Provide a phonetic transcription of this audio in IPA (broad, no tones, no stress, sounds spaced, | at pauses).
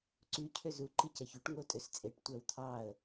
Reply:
ǀ y cʰ ø z u ǃ i c æ ç u ʈ ŋ o tʼ ø s t͡sʼ e ʈ tʷ æ w t̪ʰ ɑ ə̯